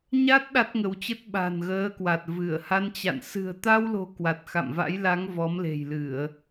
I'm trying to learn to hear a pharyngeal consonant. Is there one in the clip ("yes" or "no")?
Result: no